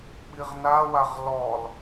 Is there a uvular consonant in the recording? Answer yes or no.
yes